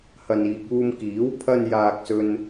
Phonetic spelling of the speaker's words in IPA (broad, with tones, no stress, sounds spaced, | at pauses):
h ɐ˨ n iː˨ k̚ uː˧ m k iː˨˥ w pʰ ɐ˧ n j aː˨ k̚ s ɵ˥ n